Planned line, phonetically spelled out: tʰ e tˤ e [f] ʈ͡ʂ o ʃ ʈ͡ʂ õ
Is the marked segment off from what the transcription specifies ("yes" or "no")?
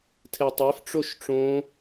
no